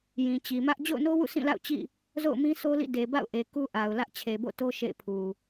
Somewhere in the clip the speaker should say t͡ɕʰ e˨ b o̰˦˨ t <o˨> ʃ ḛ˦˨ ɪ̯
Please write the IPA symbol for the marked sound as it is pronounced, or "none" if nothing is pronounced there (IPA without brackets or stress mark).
o˦